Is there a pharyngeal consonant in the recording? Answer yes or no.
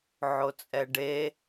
yes